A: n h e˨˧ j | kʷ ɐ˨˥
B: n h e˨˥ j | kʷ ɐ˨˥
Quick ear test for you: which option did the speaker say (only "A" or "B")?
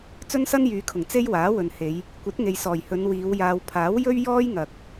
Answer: A